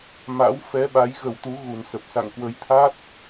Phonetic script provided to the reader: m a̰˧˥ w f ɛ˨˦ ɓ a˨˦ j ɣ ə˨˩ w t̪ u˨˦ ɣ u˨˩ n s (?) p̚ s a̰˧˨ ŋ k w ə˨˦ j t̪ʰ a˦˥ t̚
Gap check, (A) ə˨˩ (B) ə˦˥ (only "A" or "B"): A